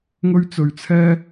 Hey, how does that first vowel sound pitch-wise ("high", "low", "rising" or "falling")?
high